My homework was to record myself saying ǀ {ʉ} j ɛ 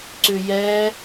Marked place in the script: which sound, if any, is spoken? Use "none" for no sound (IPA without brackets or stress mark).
ʉ